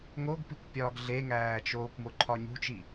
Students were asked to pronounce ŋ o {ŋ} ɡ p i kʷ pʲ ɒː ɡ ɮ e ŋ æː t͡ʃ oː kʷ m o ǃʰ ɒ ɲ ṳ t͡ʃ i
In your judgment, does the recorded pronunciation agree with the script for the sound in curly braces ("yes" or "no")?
no